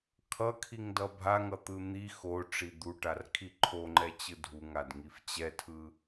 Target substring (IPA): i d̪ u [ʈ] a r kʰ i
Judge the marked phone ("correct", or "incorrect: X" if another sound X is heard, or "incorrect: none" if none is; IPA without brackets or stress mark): correct